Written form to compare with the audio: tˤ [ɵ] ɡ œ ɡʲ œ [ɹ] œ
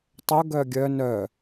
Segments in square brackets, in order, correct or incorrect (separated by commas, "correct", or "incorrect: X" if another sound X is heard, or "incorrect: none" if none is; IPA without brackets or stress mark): correct, incorrect: n